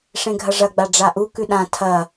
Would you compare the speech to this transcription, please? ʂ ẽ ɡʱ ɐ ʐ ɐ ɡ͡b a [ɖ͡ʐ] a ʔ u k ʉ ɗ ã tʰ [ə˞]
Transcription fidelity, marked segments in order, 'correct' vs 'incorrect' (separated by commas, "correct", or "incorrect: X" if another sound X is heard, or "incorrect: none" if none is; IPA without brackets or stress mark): correct, incorrect: ɐ